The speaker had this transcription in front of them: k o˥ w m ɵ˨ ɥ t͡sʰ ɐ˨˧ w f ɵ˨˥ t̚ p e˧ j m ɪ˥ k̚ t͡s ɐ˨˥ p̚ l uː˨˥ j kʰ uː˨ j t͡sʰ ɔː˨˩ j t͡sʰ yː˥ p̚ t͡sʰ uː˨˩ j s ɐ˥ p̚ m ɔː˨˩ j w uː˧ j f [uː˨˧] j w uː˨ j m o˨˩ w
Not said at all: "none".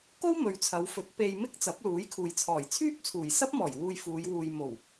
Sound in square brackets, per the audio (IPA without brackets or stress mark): uː˨˧